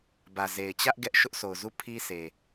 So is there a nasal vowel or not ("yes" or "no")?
no